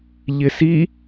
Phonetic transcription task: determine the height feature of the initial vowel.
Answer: high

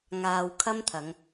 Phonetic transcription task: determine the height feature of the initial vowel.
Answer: low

